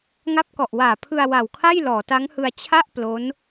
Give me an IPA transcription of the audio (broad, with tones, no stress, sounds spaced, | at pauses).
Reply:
ŋ a˦˥ p̚ k ɔ˨˩ ʔ w aː˨˩ pʰ ɯ˧ a̯ w a˨˩ w kʰ a˥˩ j l ɔː˩˦ t a˦˥ ŋ h ɯ˧ a̯ t͡ɕʰ a˥˩ ʔ p l o˦˥ n